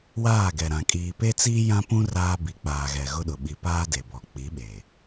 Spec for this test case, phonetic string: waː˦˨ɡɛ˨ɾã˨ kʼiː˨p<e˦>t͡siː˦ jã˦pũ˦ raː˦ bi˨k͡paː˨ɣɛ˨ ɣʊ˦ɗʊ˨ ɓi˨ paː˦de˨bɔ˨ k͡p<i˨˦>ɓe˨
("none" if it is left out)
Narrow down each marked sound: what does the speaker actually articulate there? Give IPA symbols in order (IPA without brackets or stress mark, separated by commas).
e˦, i˨˦